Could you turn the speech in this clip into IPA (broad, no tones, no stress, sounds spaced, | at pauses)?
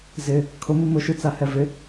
z ɪ | kʰ ʊ m ɨ m ʊ ʃ ɨ t͡s a h ɛ v ɪ